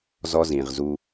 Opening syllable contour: high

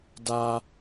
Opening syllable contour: high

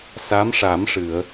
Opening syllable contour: rising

